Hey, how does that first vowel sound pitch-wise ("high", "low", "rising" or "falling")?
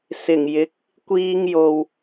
low